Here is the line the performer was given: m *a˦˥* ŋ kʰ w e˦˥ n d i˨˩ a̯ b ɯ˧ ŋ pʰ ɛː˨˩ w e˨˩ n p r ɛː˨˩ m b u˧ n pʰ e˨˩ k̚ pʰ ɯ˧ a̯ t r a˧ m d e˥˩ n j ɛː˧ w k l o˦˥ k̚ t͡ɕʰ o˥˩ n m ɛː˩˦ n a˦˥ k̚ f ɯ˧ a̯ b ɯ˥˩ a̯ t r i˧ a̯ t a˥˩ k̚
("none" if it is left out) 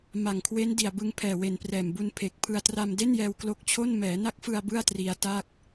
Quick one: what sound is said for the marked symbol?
a˨˩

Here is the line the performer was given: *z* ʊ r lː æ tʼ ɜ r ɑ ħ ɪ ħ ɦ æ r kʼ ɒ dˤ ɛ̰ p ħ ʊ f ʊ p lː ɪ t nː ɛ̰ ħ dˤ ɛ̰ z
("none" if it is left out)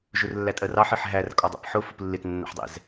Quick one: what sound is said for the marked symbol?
ʒ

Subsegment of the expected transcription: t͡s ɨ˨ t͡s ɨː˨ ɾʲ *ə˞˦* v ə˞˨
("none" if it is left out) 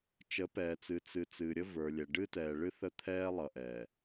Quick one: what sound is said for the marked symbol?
ə˦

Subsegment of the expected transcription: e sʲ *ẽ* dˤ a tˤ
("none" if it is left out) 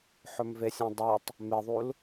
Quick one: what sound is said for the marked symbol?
ẽ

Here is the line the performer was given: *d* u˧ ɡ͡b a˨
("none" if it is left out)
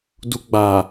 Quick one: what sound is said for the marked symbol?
d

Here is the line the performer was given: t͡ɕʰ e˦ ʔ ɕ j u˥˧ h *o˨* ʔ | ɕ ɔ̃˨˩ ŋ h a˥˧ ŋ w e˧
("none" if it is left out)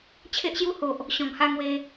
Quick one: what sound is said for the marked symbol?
o˨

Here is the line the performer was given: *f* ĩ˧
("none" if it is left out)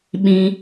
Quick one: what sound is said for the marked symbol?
ɓ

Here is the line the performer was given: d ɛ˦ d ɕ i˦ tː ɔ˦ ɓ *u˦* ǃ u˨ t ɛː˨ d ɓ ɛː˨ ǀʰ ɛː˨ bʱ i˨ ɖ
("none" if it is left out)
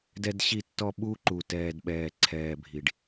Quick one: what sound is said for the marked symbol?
u˦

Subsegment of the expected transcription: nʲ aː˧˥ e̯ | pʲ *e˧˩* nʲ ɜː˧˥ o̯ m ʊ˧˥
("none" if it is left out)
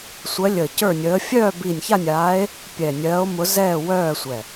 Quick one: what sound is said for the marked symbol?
ɛ˧˩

